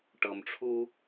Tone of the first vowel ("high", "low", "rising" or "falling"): low